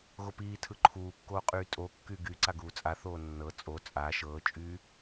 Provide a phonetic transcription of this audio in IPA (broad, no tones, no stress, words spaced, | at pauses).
ɣopiːtʰɯ ǃʰuːkːoːqʼyː tʼokːy ɡyǀa ɡuːt͡sʼaθoː nːɤ t͡sʼo t͡sʼa ʃɤːt͡ʃʼyː